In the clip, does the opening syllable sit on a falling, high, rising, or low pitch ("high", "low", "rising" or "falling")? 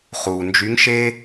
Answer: low